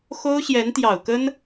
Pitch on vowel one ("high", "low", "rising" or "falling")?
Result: high